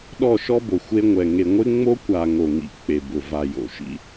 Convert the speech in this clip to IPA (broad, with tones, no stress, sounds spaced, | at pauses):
ɗ ɔ˦˨ ʃ ɔ˦ b o˨ xʷ e˦ ŋʷ ɛ˨ ŋ e˨ ŋʷ ɪ˦ ŋ͡m o˦ kʷ a˨ ŋ o˨ ŋ ḭ˨ k͡p e˨ b ʊ˨ v a˨ j o̰˨ ʃ ḭ˦